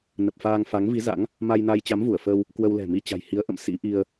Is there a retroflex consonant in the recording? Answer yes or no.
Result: no